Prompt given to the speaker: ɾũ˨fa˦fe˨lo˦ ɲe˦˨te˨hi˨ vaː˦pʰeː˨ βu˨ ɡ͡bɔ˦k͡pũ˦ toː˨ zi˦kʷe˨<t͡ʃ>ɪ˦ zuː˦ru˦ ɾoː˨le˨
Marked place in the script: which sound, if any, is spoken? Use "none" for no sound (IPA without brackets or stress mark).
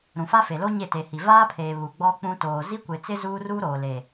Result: t͡s